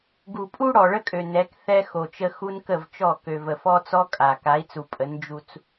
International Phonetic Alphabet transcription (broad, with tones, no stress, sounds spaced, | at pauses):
ɡ u˨ pʼ u˦ ɽ ɔ˨ ɭ ə˦ kʼ ø˨ n ɛ˨˦ k θ ɛ˦ x o˨ t͡ʃ ə˦ x u˦ n k ə˦˨ v t͡ʃ ɔ˦˨ k ø˨ v ə˨ f ɔ˦ t͡s ɔ˦ kʼ a˨ k a˨˦ i̯ t͡s u˨ pʼ ə˨˦ n d͡ʒ u˦ t͡s